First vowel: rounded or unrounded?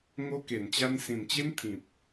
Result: rounded